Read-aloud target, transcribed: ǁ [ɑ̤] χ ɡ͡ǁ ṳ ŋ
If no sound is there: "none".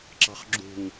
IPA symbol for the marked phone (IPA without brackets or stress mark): ɑ̤